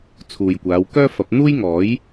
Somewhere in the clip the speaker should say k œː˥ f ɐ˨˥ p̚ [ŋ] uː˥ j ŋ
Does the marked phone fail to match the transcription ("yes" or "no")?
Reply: yes